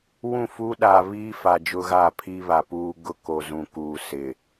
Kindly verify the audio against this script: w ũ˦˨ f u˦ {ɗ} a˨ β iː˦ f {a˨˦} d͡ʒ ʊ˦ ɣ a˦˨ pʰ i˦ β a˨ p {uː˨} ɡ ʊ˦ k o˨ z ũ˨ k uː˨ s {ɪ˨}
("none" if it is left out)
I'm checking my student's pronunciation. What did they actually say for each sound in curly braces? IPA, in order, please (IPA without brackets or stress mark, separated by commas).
ɗ, a˨, uː˦, ɪ˨